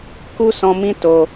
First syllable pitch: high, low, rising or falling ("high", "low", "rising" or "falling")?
high